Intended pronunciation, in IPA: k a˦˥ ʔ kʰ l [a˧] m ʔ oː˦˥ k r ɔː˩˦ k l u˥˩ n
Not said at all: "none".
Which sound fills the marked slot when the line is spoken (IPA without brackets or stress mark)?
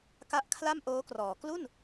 a˥˩